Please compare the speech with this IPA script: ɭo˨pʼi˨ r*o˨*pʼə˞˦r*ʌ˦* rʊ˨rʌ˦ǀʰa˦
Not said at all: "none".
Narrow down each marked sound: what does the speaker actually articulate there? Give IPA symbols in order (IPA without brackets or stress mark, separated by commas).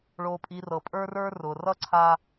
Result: ɤ˨, ə˞˦